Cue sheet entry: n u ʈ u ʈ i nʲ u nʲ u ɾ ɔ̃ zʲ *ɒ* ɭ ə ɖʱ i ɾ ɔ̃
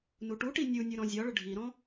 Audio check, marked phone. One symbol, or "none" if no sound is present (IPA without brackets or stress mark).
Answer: ɒ